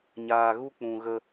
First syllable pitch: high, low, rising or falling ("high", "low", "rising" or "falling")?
low